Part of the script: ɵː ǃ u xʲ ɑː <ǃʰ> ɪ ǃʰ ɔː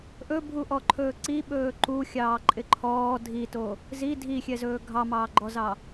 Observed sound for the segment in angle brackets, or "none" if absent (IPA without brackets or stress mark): ǃʼ